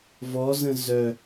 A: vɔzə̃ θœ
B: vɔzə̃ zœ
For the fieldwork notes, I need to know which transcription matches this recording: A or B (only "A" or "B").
B